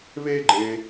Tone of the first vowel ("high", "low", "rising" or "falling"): high